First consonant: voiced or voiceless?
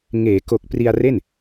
voiced